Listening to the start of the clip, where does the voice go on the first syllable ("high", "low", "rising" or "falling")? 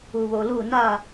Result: low